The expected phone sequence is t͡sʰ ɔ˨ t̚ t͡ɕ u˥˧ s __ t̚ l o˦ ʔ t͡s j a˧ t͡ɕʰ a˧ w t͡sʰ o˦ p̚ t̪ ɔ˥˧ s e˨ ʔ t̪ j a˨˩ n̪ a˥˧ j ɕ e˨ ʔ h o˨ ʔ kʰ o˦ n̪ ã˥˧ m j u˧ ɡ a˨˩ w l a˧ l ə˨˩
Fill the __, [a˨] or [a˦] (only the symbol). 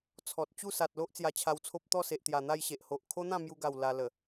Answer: a˨